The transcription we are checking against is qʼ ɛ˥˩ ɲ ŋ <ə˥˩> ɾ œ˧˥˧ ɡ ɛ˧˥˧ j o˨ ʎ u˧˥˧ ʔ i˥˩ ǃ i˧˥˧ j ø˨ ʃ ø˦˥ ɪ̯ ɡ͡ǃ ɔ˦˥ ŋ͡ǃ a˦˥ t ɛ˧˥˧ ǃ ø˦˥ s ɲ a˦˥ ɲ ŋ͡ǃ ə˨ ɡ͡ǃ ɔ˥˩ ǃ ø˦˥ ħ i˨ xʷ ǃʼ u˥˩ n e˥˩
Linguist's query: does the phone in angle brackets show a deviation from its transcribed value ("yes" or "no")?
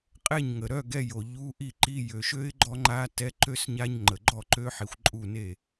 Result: yes